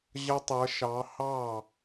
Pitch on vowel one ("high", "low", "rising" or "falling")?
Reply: high